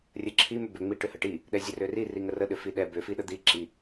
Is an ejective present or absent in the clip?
absent